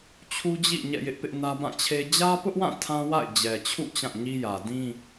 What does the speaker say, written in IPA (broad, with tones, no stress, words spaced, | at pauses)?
t͡ɕʰu˦d͡ʑḭ˦˨ ɲɛ̰˦˨jɪ˦ʔpɪ˦ʔnä˦ bã˦˨t͡ɕʰe˦ d͡ʑä˦pʊ˦ʔwã˦˨ tʰã˦wa̰˦˨ɪ̯ d͡ʑɛ˨t͡ɕʰṵ˦˨ t͡ɕã˦˨ɲi˦jä˨ dĩ˦